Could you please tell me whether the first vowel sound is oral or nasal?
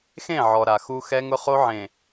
nasal